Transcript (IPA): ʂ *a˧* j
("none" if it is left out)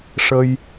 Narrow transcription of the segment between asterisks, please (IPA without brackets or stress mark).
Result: ə˧